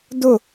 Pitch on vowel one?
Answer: falling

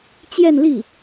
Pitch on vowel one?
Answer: falling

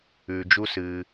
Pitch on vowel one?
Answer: low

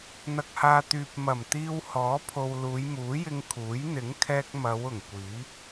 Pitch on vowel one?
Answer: low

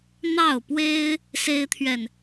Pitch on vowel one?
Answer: falling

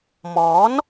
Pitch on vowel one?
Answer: rising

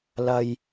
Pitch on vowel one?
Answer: low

